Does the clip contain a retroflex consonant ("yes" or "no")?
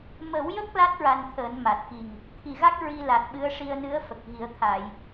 yes